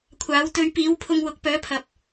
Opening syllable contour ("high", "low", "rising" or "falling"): rising